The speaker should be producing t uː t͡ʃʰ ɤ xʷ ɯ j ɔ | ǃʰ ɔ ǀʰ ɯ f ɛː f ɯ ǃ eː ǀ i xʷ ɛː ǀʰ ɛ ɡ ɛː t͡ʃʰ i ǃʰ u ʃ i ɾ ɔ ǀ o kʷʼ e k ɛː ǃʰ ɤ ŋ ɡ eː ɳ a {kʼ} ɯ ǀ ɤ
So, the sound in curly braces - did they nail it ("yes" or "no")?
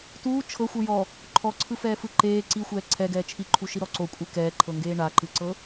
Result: no